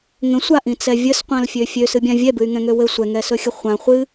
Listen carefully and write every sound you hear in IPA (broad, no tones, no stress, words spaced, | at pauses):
ŋə̃sʷaʔĩt͡sɛ vʲəsqʷãlfʲø fʲøsɨbʲã vʲɛbɨy̯ŋɛ̃ŋø wɘ sʷɛŋɛsɵxʲə χʷã χʷɨ